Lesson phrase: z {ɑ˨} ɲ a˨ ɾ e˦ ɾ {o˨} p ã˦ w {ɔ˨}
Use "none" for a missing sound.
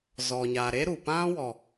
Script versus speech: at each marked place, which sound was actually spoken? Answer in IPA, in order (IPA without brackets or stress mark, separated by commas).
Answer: ɔ˨, u˨, ɔ˨